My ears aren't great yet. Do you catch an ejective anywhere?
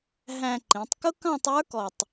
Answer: no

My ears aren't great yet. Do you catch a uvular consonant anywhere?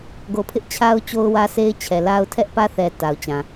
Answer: no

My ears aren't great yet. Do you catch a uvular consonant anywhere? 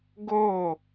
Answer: no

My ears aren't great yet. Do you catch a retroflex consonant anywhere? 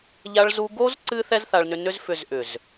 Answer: yes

